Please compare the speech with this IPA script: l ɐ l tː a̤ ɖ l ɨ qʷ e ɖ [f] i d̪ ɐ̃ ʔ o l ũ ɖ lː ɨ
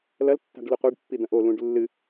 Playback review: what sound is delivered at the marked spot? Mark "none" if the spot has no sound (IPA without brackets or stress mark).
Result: pː